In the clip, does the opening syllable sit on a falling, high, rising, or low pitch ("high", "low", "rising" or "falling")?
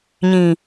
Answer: low